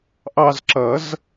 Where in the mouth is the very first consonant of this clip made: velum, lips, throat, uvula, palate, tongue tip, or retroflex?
throat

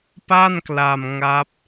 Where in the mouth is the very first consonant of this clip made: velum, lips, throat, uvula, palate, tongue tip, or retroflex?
lips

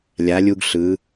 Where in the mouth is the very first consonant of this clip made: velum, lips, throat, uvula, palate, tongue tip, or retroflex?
tongue tip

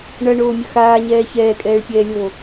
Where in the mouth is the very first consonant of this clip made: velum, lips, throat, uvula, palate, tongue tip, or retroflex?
retroflex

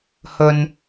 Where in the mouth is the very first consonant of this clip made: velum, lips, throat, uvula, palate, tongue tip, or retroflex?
throat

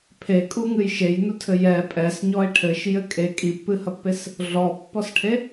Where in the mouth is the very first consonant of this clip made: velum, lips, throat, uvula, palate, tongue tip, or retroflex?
lips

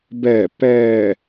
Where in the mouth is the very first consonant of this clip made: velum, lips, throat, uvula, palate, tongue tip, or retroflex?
lips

